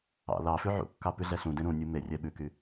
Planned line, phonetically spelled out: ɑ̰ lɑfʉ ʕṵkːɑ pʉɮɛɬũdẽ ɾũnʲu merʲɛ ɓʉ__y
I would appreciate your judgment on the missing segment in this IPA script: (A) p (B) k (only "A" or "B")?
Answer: B